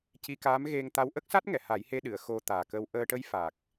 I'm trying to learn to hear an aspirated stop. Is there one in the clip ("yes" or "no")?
no